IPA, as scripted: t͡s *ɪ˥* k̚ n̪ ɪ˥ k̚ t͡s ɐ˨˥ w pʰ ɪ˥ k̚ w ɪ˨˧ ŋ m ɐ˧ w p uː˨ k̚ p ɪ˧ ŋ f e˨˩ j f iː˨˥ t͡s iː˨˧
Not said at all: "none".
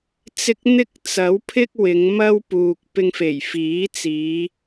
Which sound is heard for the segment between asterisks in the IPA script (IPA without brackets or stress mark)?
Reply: ɪ˧